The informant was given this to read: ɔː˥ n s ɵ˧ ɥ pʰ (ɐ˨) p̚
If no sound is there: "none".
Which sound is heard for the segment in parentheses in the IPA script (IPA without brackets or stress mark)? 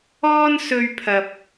ɐ˨